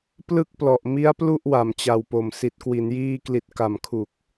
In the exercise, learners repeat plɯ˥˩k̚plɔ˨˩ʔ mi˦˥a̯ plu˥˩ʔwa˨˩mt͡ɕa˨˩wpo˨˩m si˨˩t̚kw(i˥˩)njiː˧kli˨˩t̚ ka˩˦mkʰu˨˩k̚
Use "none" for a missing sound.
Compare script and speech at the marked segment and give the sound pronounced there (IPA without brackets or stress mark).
i˩˦